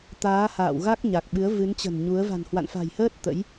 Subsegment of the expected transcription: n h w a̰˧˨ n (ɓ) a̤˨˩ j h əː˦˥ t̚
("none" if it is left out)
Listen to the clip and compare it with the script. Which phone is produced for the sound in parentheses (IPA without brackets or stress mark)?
f